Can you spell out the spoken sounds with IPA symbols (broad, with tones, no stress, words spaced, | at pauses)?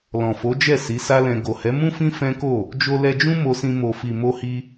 lɔ̃˨fo˨˦ d͡ʒɛ˦˨si˨˦sa˦lɛ̃˧ ɡo˨hɛ˨˦mũ˦fĩ˦ fɛ̃˦ko˦˨ | d͡ʒo˧lɛ˧d͡ʒũ˦ mo˧sĩ˧ mo˨fi˨ mo˧hi˧